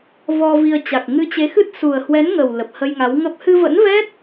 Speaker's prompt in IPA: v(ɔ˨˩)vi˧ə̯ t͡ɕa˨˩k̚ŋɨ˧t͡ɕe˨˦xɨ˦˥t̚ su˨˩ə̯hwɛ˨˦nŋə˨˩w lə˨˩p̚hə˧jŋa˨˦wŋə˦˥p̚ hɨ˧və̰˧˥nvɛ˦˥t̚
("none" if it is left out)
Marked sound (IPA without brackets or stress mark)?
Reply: ɔ˧